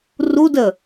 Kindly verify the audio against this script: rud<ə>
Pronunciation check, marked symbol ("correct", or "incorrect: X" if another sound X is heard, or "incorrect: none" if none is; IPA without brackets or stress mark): correct